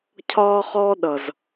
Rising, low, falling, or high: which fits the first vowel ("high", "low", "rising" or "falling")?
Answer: high